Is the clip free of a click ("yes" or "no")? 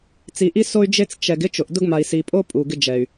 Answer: yes